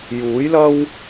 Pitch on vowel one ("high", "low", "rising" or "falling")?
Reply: rising